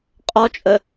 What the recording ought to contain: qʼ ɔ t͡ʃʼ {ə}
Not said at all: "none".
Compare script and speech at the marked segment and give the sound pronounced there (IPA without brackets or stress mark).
ə